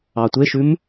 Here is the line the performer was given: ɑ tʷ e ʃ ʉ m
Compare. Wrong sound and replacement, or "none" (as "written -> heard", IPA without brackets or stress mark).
none